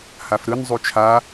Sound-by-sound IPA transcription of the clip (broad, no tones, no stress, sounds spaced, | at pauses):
h a f ɾ ɯ n zˤ u t͡ʃʰ a